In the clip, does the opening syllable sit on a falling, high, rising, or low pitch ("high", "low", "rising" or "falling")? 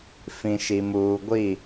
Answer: low